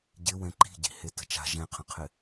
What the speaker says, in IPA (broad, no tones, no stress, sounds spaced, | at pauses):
ɟ ɪ w ɛ̃ ǃ i̤ ɟ i̤ h e t ə̤ t͡ʃ a̤ ʒ ɛ̃ qʰ ə̃ qʰ ɪ